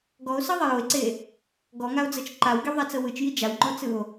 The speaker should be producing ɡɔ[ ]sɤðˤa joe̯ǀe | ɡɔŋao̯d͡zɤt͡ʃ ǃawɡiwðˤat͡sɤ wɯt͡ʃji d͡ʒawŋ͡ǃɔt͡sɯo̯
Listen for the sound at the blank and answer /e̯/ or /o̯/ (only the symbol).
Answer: o̯